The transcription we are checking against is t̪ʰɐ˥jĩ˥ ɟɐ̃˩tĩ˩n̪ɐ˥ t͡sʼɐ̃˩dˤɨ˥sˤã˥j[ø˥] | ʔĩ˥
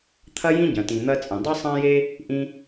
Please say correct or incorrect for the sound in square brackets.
incorrect